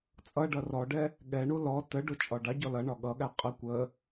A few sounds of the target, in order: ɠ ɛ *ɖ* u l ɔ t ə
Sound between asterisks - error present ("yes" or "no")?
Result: yes